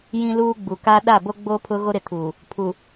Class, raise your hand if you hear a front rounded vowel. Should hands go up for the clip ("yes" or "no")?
no